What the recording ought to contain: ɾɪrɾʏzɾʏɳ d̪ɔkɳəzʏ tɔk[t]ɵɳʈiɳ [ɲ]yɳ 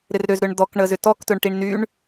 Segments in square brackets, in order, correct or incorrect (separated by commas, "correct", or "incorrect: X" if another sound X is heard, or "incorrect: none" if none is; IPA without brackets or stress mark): correct, incorrect: n